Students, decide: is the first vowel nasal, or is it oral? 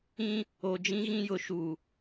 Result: nasal